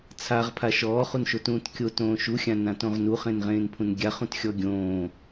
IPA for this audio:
t͡sʰaʁpʰa ʃɔːχunʃotũːt kʲotõː ʃuxʲãnãtõʁ nuχẽnʁẽːnpʰũn ɡʲaχũtxʲɔ ɡʲõː

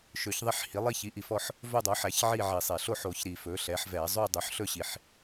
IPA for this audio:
ʃɵ˨˩˦çðˤi˥˧ħhi˩˥ lˠi˥˧çi˩˥ʔi˩fɔ˥˧ħ | vɵ˥˧dˤo˩˥ħæ˩˥ç ʕi˥˧ ʕi˩sˤe˩ ɬo˥˧ħo˨˩˦çɾi˩ fɵ˩˥ɬɛ˩˥ħvɛ˨˩˦ zˤʉ˥˧ dˤø˩˥ħɬɵ˥˧ɕi˩ħ

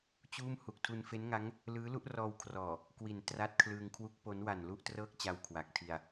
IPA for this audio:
t͡ɕuː˥˩m hu˨˩k̚tʰu˧nfe˦˥nŋa˦˥ŋ | lɯː˦˥lu˦˥ʔrɔː˧wkʰrɔː˨˩ | kwi˨˩n tra˦˥t̚kʰlɯː˧ŋ kʰwu˦˥k̚ po˦˥n wa˨˩nlu˥˩ʔtrɤː˥˩k̚t͡ɕa˧w kʰwa˨˩k̚tʰi˧a̯

